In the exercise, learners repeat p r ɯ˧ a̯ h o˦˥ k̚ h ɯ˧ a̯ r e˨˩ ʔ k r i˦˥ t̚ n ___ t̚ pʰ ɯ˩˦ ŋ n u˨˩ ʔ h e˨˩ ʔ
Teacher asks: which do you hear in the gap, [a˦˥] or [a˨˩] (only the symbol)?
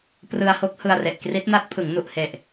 a˦˥